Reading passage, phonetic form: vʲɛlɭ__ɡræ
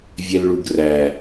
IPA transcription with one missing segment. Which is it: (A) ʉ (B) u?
B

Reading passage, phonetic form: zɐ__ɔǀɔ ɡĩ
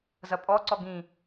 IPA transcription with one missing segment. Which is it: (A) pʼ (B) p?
A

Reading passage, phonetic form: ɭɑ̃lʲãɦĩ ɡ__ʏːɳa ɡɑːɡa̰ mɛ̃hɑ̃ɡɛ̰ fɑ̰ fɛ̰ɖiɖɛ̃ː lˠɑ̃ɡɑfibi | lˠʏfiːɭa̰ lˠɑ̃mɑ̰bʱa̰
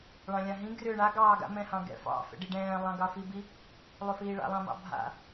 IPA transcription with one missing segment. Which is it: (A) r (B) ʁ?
A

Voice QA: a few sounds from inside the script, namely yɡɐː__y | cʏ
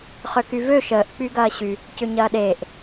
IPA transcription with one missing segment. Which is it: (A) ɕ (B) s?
A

